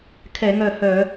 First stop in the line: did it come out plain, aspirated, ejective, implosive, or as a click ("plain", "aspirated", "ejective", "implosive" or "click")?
aspirated